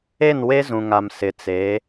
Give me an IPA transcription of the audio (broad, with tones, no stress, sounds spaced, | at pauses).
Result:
e˦˨ n w e˦ z ũ˨ ŋ a˨ m s ɪ˨ t͡s e˨˦